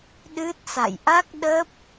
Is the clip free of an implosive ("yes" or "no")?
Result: no